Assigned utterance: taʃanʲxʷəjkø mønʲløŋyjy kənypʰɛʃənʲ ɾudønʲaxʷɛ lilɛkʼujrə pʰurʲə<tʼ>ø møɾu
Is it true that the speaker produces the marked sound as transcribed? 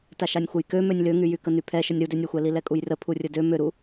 no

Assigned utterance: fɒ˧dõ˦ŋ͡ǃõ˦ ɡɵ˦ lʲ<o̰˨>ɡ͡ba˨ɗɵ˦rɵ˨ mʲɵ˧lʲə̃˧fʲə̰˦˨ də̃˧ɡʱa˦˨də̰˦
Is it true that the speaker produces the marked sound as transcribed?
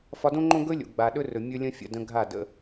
yes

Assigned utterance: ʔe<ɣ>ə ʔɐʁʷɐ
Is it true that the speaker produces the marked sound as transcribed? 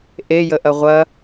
no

